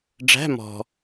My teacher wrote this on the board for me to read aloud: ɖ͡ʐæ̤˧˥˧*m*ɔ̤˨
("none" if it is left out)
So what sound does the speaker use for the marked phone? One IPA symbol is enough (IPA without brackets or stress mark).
m